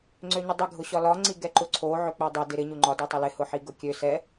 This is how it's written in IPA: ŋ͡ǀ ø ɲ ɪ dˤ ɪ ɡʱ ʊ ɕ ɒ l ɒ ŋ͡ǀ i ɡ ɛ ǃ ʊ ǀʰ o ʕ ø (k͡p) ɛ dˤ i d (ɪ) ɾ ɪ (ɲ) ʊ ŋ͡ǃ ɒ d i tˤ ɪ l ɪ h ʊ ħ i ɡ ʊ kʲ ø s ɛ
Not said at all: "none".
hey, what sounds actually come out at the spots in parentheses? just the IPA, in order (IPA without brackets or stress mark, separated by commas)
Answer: k͡p, ɪ, ɲ